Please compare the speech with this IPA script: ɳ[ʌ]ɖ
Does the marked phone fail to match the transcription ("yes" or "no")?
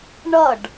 no